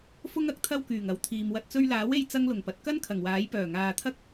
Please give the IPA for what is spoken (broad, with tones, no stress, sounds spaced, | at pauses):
f ʊ˥ ŋ ɐ˥ k̚ t̪ʰ ɐ˥ w k yː˨˩ ŋ ɐ˨˥ w t̪ʰ iː˨ m w ɐ˧ t̚ t͡s ɵ˧ ɥ l aː˨˥ w e˧ j t͡s ɐ˥ ŋ l ʊ˨˩ ŋ p ɐ˨ t̚ k ɐ˥ n kʰ ɐ˨˩ ŋ w aː˨˥ j p œː˨˩ ŋ aː˨ t̪ʰ ɐ˥ k̚